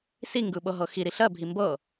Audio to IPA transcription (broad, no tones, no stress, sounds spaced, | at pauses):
s i ŋ ɡ ɯ ɓ ɤ ɦ ɤ x i ɾ i ɬ ɜ bʱ i m b ɤ